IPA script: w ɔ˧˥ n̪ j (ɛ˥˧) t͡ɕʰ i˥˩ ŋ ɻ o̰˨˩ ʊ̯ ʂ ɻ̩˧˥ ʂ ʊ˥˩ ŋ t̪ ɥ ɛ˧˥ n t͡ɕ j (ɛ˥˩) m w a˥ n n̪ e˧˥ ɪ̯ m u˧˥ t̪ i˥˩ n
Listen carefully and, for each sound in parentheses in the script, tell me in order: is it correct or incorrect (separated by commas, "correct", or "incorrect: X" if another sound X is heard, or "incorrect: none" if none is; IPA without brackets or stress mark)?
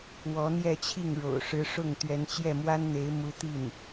correct, correct